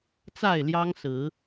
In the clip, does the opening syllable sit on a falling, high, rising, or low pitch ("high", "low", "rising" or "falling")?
falling